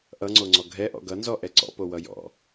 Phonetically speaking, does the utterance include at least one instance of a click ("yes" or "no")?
yes